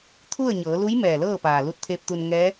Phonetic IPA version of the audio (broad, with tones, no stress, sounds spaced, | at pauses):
t̪ʰ u˥˨ ə̯ ɲ ɤː˩˧ l u˧˥ j m ɛː˧˩ l ɤː˥˨ p aː˩ l u˧ t̚ t̪ʰ eː˧ p̚ t̪ u˧ n ŋ ɛː˧˥